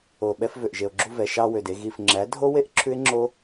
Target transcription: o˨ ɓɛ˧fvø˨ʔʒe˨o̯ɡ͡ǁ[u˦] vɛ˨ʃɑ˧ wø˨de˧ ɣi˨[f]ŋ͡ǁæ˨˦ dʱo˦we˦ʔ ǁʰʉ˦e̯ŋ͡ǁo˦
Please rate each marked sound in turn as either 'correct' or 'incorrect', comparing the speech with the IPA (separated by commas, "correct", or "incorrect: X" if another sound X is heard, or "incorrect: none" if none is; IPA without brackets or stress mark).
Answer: incorrect: u˧, correct